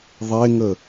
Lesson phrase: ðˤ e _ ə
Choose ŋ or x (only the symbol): ŋ